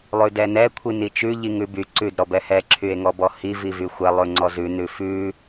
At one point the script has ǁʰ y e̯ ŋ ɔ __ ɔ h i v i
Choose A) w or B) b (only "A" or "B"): B